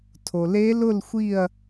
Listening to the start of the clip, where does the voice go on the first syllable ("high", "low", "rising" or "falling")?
low